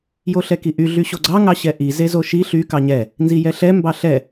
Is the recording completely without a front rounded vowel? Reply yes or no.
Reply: no